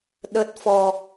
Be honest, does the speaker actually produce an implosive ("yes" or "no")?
yes